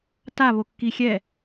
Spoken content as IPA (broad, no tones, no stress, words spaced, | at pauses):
ta βokːixʲɛ